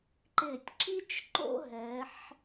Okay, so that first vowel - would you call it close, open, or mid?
close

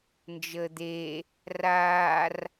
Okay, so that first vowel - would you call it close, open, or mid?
mid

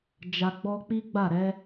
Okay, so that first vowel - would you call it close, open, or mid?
open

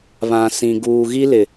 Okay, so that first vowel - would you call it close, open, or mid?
open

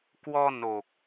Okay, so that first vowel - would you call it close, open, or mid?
mid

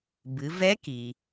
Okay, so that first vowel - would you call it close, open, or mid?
close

